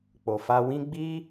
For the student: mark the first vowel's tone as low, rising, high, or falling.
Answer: low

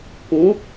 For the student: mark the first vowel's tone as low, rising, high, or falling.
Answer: rising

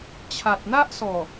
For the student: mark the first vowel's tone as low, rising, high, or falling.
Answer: low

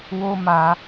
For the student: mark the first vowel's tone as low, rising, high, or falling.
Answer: high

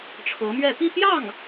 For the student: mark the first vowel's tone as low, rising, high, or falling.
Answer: rising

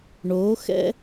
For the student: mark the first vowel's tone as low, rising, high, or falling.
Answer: rising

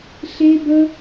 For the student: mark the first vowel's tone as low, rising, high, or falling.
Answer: high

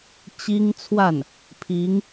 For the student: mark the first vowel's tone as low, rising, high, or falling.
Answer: high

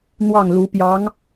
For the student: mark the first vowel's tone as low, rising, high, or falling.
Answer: falling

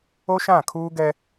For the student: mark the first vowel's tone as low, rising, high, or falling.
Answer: high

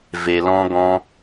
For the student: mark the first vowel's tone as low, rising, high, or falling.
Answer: low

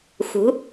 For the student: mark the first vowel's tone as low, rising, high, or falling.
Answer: rising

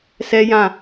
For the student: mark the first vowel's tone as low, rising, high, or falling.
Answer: high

